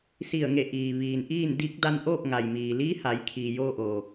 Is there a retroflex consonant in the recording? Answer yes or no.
no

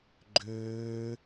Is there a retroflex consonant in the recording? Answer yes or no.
no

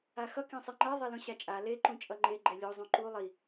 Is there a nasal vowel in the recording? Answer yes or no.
yes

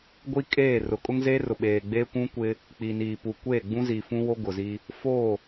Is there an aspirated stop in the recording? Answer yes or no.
no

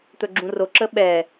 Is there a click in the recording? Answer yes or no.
yes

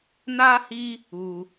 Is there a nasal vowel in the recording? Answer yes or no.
no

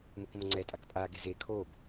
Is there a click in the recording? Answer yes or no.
yes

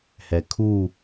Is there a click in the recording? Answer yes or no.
no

